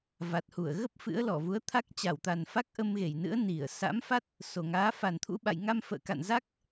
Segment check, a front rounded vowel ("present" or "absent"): absent